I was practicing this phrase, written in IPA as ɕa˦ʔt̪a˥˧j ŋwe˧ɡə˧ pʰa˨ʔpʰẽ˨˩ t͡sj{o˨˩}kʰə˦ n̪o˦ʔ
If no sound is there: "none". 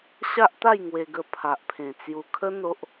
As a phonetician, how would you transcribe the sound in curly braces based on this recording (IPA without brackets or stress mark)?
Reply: u˨˩